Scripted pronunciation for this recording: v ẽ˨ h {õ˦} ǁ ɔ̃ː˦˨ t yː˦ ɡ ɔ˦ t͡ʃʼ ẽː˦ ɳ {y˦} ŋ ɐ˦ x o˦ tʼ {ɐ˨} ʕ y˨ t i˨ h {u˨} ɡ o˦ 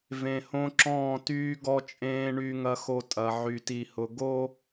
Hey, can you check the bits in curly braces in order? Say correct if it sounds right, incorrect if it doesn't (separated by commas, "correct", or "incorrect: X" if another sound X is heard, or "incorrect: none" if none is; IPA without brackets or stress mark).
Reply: correct, correct, correct, incorrect: ʊ˨